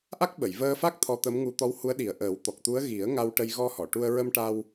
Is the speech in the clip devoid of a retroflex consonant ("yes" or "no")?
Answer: no